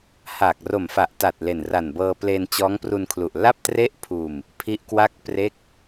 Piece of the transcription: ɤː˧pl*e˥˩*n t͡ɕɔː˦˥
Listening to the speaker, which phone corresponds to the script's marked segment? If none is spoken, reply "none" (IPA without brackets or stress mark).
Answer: e˧